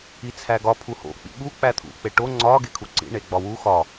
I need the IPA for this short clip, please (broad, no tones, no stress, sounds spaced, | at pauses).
i t͡sʰ æ ɡ ɒ pʰ u h o̰ k͡p ḭ ɓ u k͡p æ t̪ʰ ṵ k͡p e ʈ o ŋ͡ǀ ɒ ɡ e kʰ u ǀ ḭ ɳ e ɡ͡b ɒ w u x ɒ